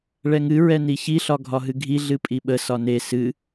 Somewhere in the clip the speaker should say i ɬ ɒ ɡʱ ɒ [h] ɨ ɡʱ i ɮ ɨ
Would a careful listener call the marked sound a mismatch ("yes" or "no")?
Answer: yes